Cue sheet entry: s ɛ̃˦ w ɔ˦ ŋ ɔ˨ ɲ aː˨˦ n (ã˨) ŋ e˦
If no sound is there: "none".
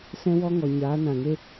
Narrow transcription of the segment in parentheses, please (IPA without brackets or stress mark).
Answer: ã˨